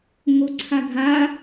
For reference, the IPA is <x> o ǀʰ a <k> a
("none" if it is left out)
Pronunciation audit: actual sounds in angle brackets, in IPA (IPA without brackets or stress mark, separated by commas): ŋ, ɡʱ